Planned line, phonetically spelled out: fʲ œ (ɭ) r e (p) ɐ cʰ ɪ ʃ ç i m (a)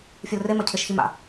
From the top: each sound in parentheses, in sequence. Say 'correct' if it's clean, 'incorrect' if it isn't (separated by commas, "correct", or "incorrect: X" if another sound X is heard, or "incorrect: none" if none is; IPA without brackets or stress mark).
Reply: incorrect: l, incorrect: m, incorrect: a̰